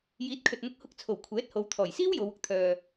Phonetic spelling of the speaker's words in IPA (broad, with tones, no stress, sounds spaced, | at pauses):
j iː˨˥ t̚ kʰ ɵ˨ t̚ n̪ ʊ˧ k̚ h ʊ˧ k̚ t͡sʰ o˨˩ w kʷʰ ɛː˨˥ t̚ h o˨˧ w t̪ʰ ɔː˨˩ j s iː˥ w j o˨˧ w ʊ˧ k̚ t̪ʰ œː˨